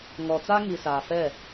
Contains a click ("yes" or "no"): no